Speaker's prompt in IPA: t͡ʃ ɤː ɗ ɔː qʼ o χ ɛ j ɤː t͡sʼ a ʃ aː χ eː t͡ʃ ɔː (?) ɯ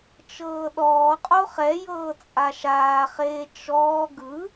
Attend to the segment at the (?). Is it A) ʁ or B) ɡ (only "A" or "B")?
B